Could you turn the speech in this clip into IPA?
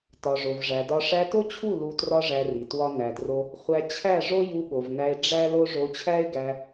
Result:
tɒ˨ʐo˨vʐæ˨dɒ˧ ʂæ˧to˦t͡ɕʰu˦˨ lu˧trɒ˦ʐæ˧ri˨ twɒ˦næ˧dro˦ | χʷæ˧ t͡ɕʰæ˦˨ ʐo˦ju˧ɠo˨vnæ˧e̯ ɖ͡ʐæ˦lo˦ ʐo˧t͡ɕʰæ˦e̯ɡæ˧

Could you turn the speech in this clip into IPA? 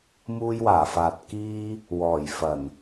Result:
muː˥jwaː˨˩faː˨t̚ kiː˥ | wɔː˨˩jfɐ˨˩n

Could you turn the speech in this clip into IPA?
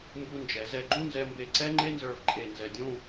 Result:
mbu˧nd͡ʒɛ˩˧ zɛ˧˩ɡ͡ǃũ˥˧nzɛ˧mbe˧˩ ǀɛ˥ŋ͡ǃe˥nzə˞˧vǃʼe˧˩ nzɛ˧˩dʲũ˥˧

